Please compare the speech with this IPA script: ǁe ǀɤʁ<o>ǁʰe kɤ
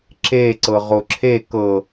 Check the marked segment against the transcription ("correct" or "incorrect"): correct